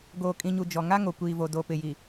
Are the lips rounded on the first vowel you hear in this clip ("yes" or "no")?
yes